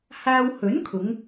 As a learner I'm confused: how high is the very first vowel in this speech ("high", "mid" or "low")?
low